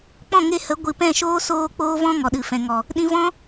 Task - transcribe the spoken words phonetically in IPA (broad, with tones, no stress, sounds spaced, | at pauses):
k͡p ɔ̃˦˨ ŋ e˧ h ə˨˦ ɡʷ ɨ˨ p ɛ̃˦˨ ʃ oː˦ s oː˧ k͡p oː˦ v ɔ̃˦ ŋ ɔ˨ ɗ ɨ˨ f ɛ̃˨ ŋ ɔ˨ | ɗ ĩ˧ v ɔ̃˦